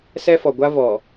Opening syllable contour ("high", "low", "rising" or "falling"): high